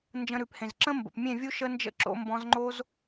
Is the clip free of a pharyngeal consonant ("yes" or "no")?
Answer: yes